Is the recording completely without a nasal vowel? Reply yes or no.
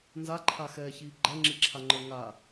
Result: yes